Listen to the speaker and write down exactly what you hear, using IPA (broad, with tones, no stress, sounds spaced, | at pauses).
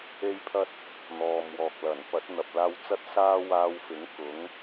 e˥ j pʰ ɐ˥ t̚ | n̪ ɔː˨ m w ɔː˨ k̚ l ɐ˨˩ n p ɐ˨˥ t̚ n̪ ɐ˨ p̚ l aː˧ w t͡s ɐ˥ t̚ s aː˥ w aː˧ w f ɪ˨˥ ŋ k ʊ˨˥ ŋ